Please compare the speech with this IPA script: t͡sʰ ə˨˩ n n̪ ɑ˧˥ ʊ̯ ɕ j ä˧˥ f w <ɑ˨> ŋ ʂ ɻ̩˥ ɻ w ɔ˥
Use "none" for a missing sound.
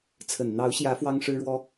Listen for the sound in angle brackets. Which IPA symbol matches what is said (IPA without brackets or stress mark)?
ɑ˥